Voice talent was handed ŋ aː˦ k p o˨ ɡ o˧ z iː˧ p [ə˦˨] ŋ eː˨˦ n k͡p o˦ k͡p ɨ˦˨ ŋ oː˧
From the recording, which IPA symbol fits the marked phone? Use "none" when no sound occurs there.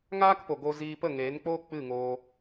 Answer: ə˦˨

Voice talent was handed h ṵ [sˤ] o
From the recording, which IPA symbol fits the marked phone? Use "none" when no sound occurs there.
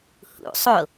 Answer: sˤ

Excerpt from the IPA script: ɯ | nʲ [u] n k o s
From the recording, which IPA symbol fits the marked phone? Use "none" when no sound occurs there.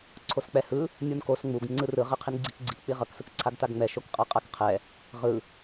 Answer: u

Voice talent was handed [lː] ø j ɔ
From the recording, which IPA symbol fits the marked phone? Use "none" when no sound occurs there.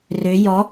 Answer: r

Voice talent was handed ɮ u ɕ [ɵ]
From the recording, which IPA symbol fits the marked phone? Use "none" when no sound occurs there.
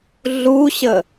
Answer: ə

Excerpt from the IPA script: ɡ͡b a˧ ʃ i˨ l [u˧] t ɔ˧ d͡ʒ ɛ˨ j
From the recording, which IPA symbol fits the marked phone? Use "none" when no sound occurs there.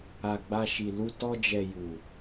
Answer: u˧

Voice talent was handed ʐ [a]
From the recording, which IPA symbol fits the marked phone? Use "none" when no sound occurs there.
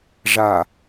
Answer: a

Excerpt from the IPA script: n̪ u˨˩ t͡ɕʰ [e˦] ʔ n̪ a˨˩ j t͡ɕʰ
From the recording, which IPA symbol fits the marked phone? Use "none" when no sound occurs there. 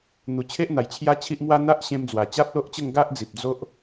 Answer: e˦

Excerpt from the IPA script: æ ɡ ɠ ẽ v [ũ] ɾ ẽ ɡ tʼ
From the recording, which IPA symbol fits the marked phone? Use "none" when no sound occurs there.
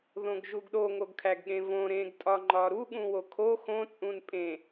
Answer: õ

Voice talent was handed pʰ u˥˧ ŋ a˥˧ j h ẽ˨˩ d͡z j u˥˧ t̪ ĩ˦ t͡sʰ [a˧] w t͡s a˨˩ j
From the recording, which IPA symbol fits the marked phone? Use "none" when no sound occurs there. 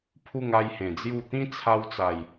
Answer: a˧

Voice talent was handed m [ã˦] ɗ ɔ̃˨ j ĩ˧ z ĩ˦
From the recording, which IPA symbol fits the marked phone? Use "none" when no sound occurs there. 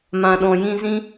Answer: ã˨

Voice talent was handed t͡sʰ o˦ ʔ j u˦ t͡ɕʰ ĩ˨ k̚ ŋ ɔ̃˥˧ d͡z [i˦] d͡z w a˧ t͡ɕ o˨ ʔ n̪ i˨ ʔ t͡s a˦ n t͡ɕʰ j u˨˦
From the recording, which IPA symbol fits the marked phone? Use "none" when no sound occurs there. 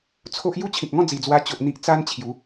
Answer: i˨˩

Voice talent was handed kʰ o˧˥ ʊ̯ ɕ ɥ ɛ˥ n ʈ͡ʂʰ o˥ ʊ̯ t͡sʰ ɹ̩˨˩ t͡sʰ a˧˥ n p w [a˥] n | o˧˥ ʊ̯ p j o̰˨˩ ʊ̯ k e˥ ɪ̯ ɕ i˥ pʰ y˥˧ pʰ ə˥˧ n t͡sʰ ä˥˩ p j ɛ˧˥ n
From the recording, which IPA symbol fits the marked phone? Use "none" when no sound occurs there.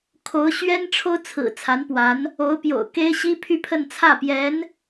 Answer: a˧˥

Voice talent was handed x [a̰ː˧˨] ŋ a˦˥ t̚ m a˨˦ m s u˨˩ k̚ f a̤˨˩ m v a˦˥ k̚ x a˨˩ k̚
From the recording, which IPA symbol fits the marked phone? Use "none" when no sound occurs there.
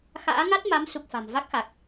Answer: a̰ː˧˥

